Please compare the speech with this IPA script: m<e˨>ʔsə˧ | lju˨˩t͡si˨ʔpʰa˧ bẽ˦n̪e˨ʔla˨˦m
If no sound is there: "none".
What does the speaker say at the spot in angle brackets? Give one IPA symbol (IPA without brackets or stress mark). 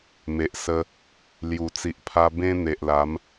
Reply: e˨